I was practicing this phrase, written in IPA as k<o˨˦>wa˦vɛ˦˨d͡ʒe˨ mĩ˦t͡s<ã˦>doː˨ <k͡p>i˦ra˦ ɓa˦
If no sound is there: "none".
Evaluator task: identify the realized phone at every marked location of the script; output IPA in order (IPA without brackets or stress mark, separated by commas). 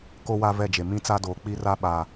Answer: o˦, a˦, k͡p